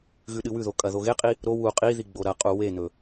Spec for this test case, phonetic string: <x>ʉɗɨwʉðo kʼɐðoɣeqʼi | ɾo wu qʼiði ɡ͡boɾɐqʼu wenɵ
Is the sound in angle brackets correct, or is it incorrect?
incorrect